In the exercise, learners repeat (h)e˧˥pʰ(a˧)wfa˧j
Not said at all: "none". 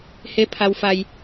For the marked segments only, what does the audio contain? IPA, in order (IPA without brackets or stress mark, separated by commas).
h, a˧